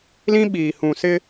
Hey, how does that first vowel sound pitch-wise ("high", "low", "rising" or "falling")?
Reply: high